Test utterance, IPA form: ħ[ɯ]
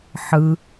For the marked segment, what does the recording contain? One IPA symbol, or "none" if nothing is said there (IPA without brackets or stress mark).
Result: ɯ